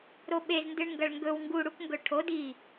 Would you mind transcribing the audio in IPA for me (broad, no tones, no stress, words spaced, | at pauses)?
ɾoɓezndɨɳ ŋɡɐɭŋɡɵw ŋɡuɽukŋɡɵ ʈʰod i